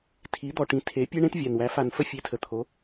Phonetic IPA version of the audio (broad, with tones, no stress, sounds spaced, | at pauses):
tʰ i˧˥ d̪ ɔ˧ ʈ ĩ˧ tʰ e˧˥ pʲ e˥ ɳ ẽ˥ t vʲ a˧ n w æ˧˥ f a˧ n f ə˥ fʲ e˧˥ tʰ ə˧ t̪ʰ o˧˥